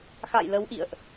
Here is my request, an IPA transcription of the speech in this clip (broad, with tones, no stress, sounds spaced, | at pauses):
x a̰˧˨ j l ə˨˦ w ʔ ḭ˧˨ ə̯ ʔ